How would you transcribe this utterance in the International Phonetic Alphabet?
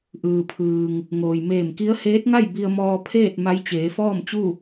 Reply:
ʔɯː˩pʰɯː˩ŋ | ŋoː˩jmeː˧˩mki˧˥ə̯ heː˧˥t̚ŋa˥˨j bi˧ə̯mɔː˧pʰeː˥˨t̚ ma˧˥jt͡ɕeː˩˧fɔː˥˨mt͡ɕu˥˨

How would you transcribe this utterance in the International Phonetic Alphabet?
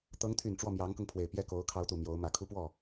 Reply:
t̪ɤ˧˥ŋt̪ʰy˨˩n ʈ͡ʂwɔ˥˩mjɑ˧˥ŋkɤ˧ŋpʰwe˨˩ɪ̯ pjɛ˥˩ko˧˥ʊ̯kʰɑ˧˥ʊ̯ t̪u˨˩ mjo˧˥ʊ̯mä˨˩ kʰu˥pwɔ˥˩

